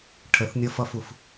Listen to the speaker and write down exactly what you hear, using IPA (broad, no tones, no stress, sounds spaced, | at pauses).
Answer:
ʈʰ ə θ nʲ ʌ f ʌ f u f